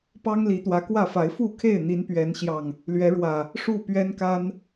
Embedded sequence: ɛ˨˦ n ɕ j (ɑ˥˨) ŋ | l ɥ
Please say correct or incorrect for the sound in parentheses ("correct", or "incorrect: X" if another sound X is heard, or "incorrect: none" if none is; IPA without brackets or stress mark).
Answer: incorrect: ɑ˨˩